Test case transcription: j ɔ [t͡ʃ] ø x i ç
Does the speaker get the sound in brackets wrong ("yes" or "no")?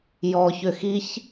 yes